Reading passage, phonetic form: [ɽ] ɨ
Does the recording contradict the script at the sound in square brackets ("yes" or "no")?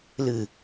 yes